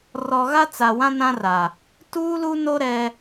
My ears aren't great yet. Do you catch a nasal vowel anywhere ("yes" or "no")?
yes